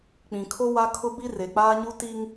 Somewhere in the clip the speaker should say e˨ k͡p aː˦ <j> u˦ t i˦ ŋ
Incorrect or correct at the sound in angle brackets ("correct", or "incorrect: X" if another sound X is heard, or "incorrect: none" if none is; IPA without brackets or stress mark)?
incorrect: ɲ